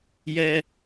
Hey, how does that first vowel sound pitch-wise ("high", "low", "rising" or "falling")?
high